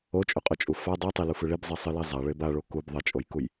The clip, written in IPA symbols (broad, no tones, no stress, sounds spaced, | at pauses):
o t͡ʃʼ ʉ qʼ ɵ t͡ʃʼ u f a dˤ i tˤ i l u f ɨ ɭ i b zˤ i sˤ ɨ l i zˤ a ɭ e b a ɭ o k u b ðˤ ɐ t͡ʃʼ o j k u j